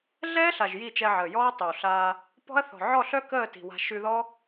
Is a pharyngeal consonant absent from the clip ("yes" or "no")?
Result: no